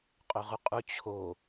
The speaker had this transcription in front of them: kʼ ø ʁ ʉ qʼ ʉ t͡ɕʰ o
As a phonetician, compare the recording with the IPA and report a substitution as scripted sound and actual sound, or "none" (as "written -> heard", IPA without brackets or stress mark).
kʼ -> qʼ